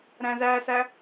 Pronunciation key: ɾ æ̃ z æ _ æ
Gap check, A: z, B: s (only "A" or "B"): B